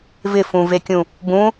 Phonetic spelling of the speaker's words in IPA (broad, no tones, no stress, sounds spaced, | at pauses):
v ɪ f ũ v e kʲ ũ | b ũ